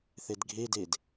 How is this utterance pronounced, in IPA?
θ i d ɡʱ i d i d

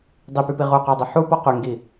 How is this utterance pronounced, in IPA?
dˤ i p y p i ʁ u q ɜ dˤ ʊ ħ u p ɔ q y ŋ ɡ i

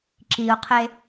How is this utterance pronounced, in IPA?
ǁ i ʊ̯ qʰ e

